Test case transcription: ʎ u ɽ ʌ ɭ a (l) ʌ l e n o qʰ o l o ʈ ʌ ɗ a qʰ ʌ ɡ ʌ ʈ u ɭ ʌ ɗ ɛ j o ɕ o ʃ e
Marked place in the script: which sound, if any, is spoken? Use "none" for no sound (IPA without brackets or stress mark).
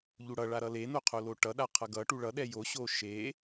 ɾ